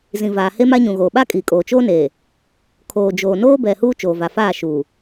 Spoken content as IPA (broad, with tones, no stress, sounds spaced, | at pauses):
z ĩ˨ v aː˨ h e˦ m a˦ ɲ ũ˨ ɣ oː˨ ɓ a˦ kʼ i˨ kʼ oː˨ t͡ʃ oː˦ n eː˨ | kʰ oː˨ d͡ʒ oː˨ n oː˦ b ɛ˨ h uː˦ t͡ʃ oː˨ v a˨ f aː˦˨ ʃ uː˨